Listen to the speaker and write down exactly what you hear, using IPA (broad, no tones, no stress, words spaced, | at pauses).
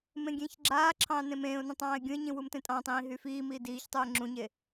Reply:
mẽɡʲẽːçɡ͡ǁaːǁʰɑ̃ː nẽmẽːʊ̯nĩ tˤɑ̃ːɪ̯ɡʲũɪ̯ɲĩ wumtẽtʼɑ̃tˤĩː ɦyfiːmiː diːçtˤuɪ̯ ŋ͡ǁũɲe